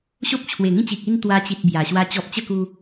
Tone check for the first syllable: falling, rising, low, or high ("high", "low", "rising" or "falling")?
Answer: high